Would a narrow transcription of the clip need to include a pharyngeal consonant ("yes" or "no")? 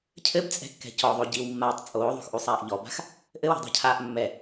no